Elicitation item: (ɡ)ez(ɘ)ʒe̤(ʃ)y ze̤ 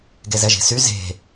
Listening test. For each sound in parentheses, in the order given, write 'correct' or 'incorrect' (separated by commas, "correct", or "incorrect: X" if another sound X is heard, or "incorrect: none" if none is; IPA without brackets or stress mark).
correct, incorrect: ɛ, incorrect: s